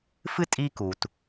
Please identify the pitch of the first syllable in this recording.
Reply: high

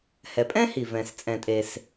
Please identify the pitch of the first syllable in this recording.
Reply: low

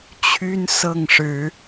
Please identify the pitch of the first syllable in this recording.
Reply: high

